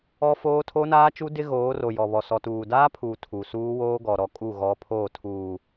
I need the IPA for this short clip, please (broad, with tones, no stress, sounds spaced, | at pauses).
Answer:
ɔ˦ f oː˦ tʰ o˦ n aː˦ t͡ʃ u˦ d ɪ˦ ɣ oː˨˦ r o˨ j ɔ˨ β ɔ˨ s ɔ˨ t uː˨ d aː˦ pʰ uː˨ tʰ u˨ s uː˦ w oː˦ ɡ ɔ˨ ɾ ɔ˦˨ kʼ u˦˨ ɣ ɔ˨˦ pʰ oː˦˨ tʰ uː˨